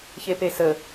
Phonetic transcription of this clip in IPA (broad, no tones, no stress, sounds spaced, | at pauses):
ç e p e s ə